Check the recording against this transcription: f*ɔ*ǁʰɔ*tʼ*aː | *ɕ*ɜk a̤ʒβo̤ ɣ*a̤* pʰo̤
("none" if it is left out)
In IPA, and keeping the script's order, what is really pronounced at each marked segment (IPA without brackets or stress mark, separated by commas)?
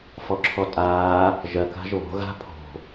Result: ɔ, tʼ, ʒ, a̤